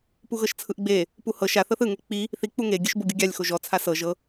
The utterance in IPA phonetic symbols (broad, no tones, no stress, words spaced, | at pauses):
puɣɤʃt͡sʰɯʔɡ͡be | puhɤ ʃaθɤθ ɯŋe k͡pi | θik͡pu ŋeɡʲɯʃ boɡʲuɡʲalʲxo ʒɔt͡sʰa sɤ ʒɤ